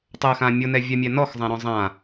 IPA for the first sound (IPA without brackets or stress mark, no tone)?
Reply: tˤ